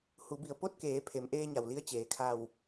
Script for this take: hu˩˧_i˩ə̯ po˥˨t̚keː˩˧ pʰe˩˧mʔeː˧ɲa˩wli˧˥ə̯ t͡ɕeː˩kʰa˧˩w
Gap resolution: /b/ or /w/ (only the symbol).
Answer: b